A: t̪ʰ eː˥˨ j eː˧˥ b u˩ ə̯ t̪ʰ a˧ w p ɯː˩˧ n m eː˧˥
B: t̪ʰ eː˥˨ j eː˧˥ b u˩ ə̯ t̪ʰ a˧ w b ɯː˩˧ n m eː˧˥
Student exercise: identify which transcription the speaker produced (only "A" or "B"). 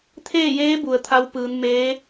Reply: A